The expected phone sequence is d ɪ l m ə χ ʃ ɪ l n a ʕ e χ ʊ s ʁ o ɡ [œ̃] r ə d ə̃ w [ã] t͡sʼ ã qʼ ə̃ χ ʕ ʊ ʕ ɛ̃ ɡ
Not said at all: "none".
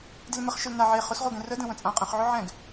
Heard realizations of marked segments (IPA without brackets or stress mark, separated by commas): ɛ̃, ə̃